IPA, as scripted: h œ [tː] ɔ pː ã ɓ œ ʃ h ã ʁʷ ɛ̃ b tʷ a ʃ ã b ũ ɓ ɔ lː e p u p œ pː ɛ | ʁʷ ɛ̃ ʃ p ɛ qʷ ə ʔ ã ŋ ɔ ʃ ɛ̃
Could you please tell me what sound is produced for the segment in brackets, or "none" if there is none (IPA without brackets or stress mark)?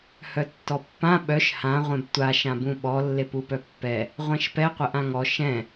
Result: tː